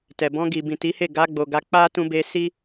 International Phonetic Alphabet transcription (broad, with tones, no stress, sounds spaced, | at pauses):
t ɛ˨ b ɔ̃˧ ɡ i˨ b ĩ˨ t i˨˦ h e˦˨ ɡ a˧ ɡ͡b o˨ ɡ a˨˦ k͡p a˦ t ũ˧ b e˧ s i˦